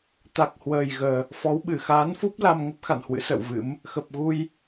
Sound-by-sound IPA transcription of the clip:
t̪ a˨˩ k̚ h w əː˨˩ j ɣ əː˨˩ | f ɔ˨˦ w ɓ ɨ˧˩ x aː˨˦ n f u˦˥ p̚ l a˧ m ŋ ə˦˥ p̚ x a̰˧˨ n h w ɨ̰˧˥ s ə̰ː˧˨ w v ɨ̰˧˥ m | x ə˨˩ p̚ ɣ u˧ j

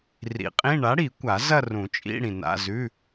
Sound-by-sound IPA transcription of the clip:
r ḭ˨˥ qʼ ĩ˧˥˧ ɳ a˨˥ ɽ i˨˩˦ kʷ a˨˩˦ z ɐ˥˧ r ũ˨˩˦ t͡ʃʼ ḭ˧˥˧ ɽ ĩ˨ n a̰˧˥˧ z ʉ˧˥˧

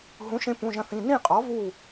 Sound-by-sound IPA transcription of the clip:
ɦ ũ˩˥ ʃ ẽ˧ p ũ˩˧˩ ʒ ɐ̃˧ θ ĩ˩˧˩ n ĩ˥˩ qʼ ɔ˩˥ v u˥˩

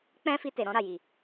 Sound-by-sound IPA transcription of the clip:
k͡p ɛ̃˦ f i˧ t e˨ ɾ ɔ̃˧ ɾ a˨ j i˨

